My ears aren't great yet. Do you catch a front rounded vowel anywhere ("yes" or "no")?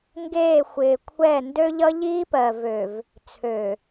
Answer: yes